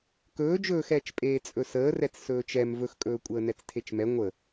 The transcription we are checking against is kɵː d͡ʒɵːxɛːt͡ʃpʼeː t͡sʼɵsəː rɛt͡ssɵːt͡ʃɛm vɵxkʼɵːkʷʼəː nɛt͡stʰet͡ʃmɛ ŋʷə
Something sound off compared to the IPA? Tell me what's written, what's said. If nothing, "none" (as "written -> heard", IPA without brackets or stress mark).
none